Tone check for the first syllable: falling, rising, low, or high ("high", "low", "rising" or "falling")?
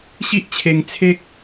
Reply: high